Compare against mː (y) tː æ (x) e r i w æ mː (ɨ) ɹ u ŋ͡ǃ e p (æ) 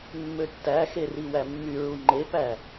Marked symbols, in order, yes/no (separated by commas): no, yes, no, yes